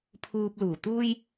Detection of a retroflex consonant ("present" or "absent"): absent